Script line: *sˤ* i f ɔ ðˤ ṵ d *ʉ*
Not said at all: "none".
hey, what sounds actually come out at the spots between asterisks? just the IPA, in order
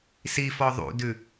s, ʉ

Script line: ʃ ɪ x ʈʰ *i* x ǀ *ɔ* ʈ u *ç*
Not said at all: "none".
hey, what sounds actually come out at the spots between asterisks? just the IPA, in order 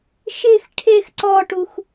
e, ɔ, x

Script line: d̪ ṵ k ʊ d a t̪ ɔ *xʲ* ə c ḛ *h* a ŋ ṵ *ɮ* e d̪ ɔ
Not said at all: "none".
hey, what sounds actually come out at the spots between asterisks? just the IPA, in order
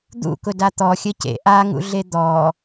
xʲ, ʔ, ɮ

